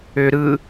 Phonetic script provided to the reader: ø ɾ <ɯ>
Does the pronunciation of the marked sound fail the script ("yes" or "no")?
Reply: no